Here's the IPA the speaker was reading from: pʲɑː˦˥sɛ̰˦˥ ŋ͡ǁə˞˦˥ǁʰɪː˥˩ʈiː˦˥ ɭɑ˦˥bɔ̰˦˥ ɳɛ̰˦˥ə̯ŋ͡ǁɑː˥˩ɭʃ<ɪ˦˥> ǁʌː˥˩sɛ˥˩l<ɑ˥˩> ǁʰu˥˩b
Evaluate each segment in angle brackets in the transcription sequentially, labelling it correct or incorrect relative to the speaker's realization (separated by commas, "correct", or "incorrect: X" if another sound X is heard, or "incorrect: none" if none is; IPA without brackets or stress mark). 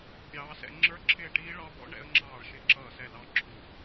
correct, correct